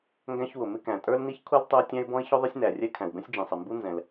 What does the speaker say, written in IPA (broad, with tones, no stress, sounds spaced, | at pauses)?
ŋ ɡ æ̃˥ ç w ʊ˩ m ɪ˥ k æ̃˩ tʼ ə˞˥ l n i˥ ç kʰ u˥ l tˤ ə˥ ʊ̯ tʲ æ̃˥ ɪ̯ b ɔ̃˥ ɪ̯ ç ʊ˥ ðˤ ɪ˥ sʲ n æ˩ rʲ ɛ˥ kʰ æ̃˩ w b ɛ̃˥ sʲ d͡ʒ ĩ˩ sˤ ɪ˩ m b u˥ n z ɛ̃˩ l